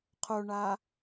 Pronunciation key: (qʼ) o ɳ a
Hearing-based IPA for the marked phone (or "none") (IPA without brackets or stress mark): qʰ